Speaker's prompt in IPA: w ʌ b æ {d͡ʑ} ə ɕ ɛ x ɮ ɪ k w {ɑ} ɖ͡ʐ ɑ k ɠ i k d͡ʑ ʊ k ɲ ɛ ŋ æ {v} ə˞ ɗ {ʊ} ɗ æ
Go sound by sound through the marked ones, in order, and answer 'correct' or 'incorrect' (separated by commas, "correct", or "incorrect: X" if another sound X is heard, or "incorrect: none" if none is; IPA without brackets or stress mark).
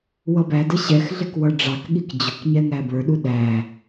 incorrect: d, incorrect: ʌ, incorrect: b, incorrect: u